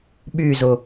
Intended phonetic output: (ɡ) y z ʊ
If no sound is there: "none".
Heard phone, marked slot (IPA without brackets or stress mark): ɓ